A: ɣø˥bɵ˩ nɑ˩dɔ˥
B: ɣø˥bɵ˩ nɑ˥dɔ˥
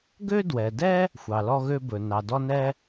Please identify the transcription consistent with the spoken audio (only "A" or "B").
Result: A